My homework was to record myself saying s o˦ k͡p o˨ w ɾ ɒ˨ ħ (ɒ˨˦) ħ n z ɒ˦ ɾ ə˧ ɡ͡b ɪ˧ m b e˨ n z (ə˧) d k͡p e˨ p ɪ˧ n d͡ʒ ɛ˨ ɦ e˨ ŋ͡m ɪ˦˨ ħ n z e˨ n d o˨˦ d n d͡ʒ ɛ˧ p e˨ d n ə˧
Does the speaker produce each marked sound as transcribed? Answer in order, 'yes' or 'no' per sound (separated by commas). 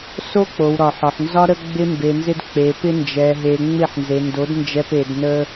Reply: no, no